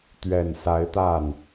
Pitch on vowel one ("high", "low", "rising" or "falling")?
low